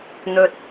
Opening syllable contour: low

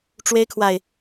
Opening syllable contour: high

